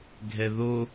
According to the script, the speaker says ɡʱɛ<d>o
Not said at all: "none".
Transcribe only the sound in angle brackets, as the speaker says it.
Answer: ð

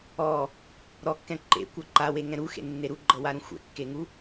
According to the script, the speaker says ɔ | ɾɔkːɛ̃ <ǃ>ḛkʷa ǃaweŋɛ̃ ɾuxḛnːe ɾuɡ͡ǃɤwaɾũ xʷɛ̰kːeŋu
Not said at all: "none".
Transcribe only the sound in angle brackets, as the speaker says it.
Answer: ǃ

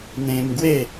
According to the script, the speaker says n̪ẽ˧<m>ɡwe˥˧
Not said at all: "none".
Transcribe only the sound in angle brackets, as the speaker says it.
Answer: m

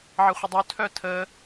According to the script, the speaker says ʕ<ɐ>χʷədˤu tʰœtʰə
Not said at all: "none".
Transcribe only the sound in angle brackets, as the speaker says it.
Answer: ɐ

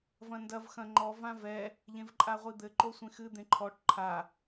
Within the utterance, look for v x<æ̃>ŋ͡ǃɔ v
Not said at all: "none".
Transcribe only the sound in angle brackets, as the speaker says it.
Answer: ɐ̃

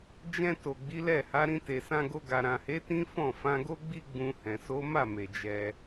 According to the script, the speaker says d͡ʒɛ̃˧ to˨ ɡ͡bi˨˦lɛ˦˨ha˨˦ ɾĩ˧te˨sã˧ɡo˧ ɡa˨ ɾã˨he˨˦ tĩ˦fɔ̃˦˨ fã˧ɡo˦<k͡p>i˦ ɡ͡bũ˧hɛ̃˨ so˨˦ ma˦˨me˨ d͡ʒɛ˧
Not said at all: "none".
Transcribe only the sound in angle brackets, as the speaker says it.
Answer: ɡ͡b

